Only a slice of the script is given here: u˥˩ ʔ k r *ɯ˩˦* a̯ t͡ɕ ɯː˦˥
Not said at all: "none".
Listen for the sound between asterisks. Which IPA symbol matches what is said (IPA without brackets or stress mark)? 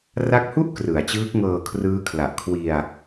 ɯ˩˦